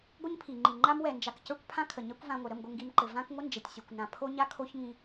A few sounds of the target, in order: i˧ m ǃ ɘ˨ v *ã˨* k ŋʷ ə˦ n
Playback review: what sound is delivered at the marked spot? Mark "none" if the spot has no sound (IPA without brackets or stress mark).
ã˦